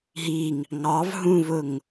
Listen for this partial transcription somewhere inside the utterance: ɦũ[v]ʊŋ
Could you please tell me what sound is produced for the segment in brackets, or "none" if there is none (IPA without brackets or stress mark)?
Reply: v